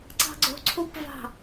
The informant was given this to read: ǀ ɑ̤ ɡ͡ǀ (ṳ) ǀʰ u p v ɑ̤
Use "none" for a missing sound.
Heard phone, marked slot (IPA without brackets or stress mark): o̤